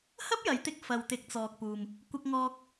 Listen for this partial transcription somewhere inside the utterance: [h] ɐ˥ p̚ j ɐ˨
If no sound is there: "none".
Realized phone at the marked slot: h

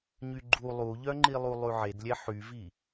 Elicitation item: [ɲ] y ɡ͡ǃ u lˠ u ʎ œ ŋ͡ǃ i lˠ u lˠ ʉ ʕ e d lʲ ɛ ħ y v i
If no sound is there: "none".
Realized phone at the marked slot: ɲ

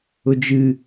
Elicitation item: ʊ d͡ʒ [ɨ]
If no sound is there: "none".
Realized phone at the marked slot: ɨ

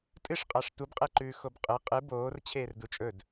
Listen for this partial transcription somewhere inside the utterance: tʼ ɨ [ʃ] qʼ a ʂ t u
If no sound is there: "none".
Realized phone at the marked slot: ʂ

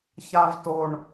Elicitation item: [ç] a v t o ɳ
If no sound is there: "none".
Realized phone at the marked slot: ç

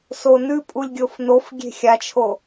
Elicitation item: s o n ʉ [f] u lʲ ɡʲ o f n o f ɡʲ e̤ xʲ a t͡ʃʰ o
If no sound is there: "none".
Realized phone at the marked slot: pʼ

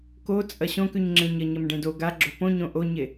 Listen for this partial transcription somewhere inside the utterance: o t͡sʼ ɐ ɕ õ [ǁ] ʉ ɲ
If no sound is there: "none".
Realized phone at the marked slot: k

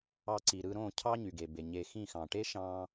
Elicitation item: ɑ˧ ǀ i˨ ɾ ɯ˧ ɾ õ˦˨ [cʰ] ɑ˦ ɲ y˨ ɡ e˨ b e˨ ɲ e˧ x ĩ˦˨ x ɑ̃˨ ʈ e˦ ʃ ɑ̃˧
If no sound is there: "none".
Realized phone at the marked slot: cʰ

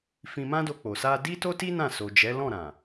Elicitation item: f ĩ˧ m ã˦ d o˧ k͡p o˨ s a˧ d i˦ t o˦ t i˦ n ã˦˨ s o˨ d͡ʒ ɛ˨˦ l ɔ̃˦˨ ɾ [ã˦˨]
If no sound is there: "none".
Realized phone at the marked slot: ã˨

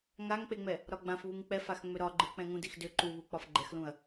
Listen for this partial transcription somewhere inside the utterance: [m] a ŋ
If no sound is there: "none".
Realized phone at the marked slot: ŋ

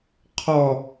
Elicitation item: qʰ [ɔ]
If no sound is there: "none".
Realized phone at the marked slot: ɔ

